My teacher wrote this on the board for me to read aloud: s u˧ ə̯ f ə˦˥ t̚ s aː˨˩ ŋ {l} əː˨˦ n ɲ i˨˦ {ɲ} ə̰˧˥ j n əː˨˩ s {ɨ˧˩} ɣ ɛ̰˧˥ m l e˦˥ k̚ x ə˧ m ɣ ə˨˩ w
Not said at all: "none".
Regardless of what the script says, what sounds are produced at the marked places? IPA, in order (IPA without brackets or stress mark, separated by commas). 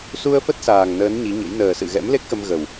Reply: n, ɲ, ɨ̰˧˨